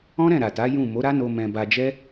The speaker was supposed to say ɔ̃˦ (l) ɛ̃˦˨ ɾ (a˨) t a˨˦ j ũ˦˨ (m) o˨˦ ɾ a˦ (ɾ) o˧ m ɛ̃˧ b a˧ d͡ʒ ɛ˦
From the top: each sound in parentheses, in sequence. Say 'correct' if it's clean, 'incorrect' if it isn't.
incorrect: ɾ, correct, correct, incorrect: n

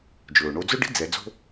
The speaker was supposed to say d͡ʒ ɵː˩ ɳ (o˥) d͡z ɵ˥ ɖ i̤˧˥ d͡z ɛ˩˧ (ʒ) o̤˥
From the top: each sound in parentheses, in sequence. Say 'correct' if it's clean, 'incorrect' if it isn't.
incorrect: o˧, incorrect: d͡z

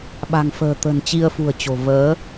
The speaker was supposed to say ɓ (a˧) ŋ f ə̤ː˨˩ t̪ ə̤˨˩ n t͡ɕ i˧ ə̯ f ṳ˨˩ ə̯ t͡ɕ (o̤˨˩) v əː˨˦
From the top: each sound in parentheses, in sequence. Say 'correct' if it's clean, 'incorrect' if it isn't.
incorrect: a̤˨˩, correct

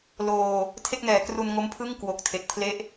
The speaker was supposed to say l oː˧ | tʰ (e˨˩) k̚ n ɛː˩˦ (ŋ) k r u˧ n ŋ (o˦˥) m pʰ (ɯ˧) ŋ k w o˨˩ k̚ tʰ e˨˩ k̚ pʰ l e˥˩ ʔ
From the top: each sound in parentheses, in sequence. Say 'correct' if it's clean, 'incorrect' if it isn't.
incorrect: e˥˩, incorrect: none, correct, incorrect: ɯ˥˩

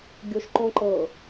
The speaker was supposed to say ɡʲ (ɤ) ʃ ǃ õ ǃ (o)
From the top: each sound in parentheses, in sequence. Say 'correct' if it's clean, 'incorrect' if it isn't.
incorrect: o, incorrect: ɤ

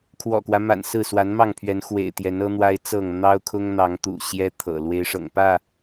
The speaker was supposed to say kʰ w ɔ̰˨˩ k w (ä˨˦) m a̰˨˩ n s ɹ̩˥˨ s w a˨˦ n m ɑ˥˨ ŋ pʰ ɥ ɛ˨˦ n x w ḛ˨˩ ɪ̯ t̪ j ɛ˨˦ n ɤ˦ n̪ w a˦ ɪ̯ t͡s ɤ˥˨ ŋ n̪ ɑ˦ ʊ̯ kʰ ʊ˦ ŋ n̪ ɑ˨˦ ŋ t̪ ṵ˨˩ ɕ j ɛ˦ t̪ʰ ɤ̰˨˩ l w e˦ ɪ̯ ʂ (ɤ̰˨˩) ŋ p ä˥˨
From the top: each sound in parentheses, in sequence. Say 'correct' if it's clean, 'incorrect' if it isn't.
incorrect: ä˦, correct

